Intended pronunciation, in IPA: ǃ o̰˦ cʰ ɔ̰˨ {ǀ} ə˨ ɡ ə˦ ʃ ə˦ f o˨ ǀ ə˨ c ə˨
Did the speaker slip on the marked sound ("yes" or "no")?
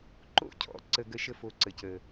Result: no